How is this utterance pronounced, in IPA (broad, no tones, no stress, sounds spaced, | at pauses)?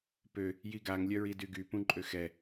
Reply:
p ø | j i ɡ a ŋ lʲ œ ɹ i d y ɡ y p ũ ǃʼ ø x ɛ